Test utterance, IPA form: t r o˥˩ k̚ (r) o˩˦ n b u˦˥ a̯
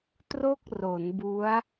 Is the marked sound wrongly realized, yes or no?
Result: no